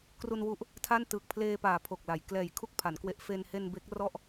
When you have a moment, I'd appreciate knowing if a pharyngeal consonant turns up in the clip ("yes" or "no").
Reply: no